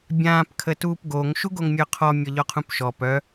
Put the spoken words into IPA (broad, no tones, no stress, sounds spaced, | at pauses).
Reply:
bʲ ãː p kʰ ə t uː p ɡ o ŋ ʃ u ɡ o ŋ mʲ œ qʰ ɔ mʲ ɔ ʎ ɔ qʰ ũ p ʃ ɔ p œ